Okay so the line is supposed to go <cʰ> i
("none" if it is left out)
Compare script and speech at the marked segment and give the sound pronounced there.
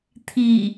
t̪ʰ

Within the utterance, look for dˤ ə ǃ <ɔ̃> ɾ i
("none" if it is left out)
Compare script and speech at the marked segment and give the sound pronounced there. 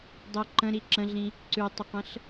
ə̃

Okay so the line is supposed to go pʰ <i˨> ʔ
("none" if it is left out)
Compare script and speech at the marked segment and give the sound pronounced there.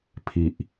i˨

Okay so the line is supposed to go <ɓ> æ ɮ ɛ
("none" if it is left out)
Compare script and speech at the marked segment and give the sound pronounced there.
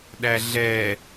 ɗ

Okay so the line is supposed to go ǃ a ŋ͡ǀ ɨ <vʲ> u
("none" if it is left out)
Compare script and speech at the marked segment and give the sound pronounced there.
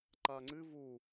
v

